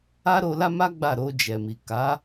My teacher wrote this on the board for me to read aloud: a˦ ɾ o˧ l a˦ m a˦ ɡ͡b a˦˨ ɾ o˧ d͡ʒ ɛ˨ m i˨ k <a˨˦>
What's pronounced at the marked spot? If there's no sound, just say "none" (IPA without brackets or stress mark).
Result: a˨˦